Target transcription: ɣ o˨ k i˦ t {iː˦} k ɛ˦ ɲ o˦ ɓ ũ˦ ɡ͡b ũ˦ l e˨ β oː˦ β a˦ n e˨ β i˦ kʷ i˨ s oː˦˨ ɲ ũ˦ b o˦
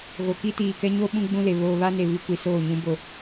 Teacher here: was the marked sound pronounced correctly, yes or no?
no